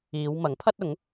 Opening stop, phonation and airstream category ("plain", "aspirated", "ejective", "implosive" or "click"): aspirated